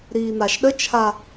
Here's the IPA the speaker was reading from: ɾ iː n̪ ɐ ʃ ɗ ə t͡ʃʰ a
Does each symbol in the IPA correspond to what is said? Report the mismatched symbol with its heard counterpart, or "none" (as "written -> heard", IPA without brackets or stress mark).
ɐ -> a